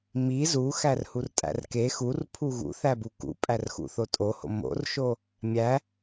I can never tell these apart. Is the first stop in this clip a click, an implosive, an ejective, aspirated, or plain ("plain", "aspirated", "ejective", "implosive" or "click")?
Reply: ejective